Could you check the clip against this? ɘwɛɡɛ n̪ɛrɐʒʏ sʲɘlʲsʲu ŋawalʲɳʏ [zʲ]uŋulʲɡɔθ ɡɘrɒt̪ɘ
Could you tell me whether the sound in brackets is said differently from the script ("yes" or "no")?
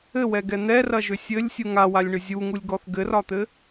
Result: no